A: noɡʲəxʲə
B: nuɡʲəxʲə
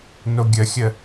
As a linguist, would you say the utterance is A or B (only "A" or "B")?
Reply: A